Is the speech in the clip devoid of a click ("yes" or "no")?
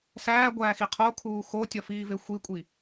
yes